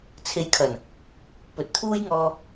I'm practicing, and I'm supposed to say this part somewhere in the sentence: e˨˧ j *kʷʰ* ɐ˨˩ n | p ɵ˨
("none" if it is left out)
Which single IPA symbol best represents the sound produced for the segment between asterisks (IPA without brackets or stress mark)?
kʰ